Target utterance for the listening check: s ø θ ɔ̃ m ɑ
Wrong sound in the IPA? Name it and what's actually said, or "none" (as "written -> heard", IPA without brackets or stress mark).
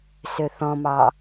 none